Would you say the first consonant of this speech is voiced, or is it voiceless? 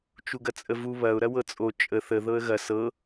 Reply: voiceless